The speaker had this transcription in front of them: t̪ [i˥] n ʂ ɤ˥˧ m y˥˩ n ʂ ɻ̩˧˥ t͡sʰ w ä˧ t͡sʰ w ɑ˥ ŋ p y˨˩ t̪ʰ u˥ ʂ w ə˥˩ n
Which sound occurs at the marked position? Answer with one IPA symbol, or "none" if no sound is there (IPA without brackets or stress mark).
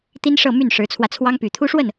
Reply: i˥